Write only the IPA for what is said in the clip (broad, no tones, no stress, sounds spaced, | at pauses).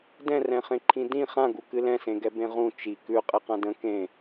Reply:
d ɛ̃ r ɛ̃ χ ẽ ǃʰ ĩ d ĩ χ ã ɡ u k ɨ l ɛ̃ s ẽ ɡ ɛ b ẽ ʁ ũ t͡ʃ i k ʉ qʼ e q ã d ə̃ k ẽ